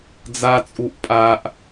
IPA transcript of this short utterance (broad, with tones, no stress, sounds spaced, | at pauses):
d͡z a˦ t͡sʼ u˦ ʔ pʼ a˦ ʔ